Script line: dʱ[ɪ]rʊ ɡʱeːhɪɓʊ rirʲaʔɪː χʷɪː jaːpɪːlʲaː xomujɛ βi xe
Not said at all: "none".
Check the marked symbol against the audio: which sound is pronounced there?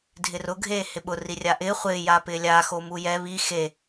ɪ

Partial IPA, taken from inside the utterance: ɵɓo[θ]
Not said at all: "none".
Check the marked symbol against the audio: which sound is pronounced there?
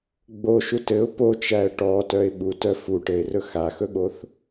θ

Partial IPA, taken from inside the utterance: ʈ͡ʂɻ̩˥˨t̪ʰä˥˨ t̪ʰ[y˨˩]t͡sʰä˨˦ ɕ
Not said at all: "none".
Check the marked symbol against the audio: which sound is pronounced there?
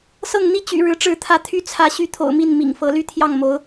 y˦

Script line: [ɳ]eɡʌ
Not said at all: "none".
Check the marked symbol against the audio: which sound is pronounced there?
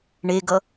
ɳ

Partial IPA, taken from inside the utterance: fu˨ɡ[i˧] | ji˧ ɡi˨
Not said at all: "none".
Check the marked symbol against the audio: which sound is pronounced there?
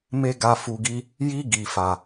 i˧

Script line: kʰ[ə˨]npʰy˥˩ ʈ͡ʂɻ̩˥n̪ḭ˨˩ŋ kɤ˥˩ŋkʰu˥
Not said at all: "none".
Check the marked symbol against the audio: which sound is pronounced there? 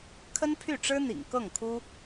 ə˥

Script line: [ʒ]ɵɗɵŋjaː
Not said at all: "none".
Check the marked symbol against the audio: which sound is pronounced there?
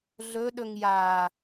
ɮ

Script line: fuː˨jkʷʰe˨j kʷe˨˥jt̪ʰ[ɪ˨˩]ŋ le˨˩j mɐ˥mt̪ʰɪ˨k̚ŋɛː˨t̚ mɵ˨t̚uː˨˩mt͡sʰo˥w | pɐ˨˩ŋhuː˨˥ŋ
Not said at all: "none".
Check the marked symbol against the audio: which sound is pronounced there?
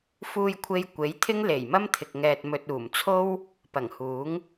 ɪ˥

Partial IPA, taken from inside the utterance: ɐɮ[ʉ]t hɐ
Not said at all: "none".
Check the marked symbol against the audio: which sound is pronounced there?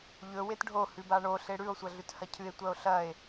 ʉ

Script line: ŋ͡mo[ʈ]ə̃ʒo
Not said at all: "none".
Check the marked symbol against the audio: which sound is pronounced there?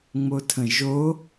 tʰ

